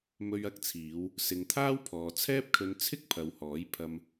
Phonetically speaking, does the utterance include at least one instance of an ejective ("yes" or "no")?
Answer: no